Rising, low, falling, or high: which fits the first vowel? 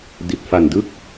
low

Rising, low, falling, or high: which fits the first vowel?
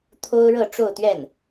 high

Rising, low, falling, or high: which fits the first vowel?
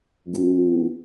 low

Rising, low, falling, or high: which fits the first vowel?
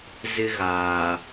high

